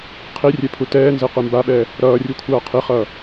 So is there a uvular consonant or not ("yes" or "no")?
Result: yes